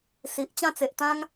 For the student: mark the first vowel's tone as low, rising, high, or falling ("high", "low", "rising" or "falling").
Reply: low